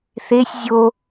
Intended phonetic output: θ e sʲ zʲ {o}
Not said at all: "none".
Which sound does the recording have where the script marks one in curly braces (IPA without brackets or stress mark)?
o